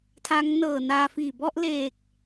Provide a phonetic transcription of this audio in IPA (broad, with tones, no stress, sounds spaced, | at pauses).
tʰ a˦˥ ŋ n ɤː˨˩ n aː˧ f iː˨˩ b ɔ˥˩ ʔ l eː˨˩ k̚